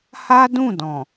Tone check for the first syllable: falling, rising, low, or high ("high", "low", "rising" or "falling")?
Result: high